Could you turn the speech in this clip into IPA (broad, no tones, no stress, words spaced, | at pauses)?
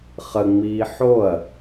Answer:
χəŋ͡miː ħoɐ̯